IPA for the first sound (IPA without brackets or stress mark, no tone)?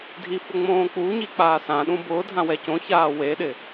dʱ